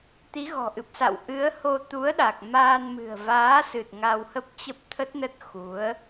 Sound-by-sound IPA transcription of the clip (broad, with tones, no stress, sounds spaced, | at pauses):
t̪ i˨˦ ɣ ɔ̤˨˩ ʔ ɨ˨˩ p̚ s a̰˧˨ w ʔ ɨ˨˦ ə̯ h o˧ t̪ u˨˦ ə̯ ɗ a˨˩ k̚ m aː˧ n m ɨ̤˨˩ ə̯ v aː˨˦ s ɨ˨˩ t̚ ŋ a˧ w h ə˦˥ p̚ t͡ɕ ə˦˥ p̚ t̪ʰ ə˦˥ t̚ n ə˦˥ t̚ x u˨˦ ə̯